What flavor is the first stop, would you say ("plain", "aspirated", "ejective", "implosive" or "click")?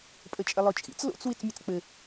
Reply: ejective